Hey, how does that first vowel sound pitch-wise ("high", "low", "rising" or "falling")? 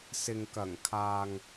low